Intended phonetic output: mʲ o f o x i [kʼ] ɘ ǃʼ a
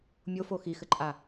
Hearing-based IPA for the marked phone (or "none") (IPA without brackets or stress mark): x